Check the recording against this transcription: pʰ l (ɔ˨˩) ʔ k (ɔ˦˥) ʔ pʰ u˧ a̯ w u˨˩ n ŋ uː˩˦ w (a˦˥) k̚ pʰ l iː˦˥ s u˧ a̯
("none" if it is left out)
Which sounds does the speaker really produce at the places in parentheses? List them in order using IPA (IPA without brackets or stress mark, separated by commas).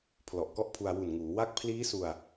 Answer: ɔ˨˩, ɔ˦˥, a˥˩